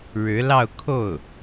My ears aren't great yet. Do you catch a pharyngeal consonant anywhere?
no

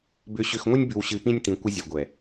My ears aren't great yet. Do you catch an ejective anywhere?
no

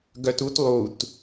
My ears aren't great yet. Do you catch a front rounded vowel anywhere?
yes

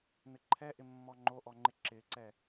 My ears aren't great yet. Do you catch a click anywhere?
yes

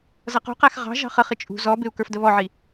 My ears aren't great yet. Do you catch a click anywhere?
no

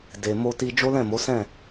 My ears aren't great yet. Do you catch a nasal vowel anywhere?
yes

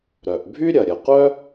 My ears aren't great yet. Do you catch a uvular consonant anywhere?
yes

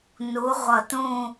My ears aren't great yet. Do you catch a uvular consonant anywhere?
yes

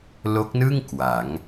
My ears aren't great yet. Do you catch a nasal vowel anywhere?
no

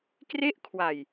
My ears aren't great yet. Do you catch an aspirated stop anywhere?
yes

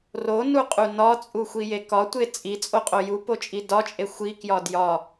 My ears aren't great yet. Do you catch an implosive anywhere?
no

